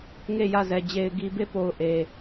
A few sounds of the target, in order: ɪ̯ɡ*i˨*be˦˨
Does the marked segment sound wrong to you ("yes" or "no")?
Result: no